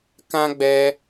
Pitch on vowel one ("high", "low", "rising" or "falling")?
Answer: high